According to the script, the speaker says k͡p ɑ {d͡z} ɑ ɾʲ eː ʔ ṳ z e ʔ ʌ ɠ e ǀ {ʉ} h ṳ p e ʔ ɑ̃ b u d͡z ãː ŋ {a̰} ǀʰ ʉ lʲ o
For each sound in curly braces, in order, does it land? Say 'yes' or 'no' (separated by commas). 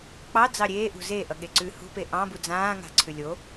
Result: yes, yes, no